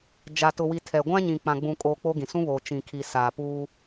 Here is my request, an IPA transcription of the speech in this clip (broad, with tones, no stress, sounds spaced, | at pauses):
d͡ʒ a˨ t ʊ˨ w i˨ tʰ ɛ˨ ɡʷ ã˦ ɲ ĩ˨ k͡p ã˨ ɡ͡b ũ˨ kʼ oː˨ k͡p o˦ ɡ ĩ˨ s ũ˦ β oː˨ t͡ʃ ĩ˨ kʰ i˨ s aː˨ p uː˦